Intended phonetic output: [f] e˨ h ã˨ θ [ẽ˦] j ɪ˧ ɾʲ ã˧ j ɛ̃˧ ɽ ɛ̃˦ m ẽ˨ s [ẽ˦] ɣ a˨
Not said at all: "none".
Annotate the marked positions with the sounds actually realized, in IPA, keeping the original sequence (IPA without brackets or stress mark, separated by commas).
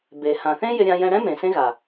b, ẽ˦, ẽ˦